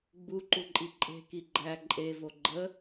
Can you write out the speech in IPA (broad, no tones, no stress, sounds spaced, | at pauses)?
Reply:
ɡ͡b u ǃ u ǃʼ i ǃʼ e̤ k i ɡ͡ǃ æ ǃʼ e v o ɡ͡ǃ ə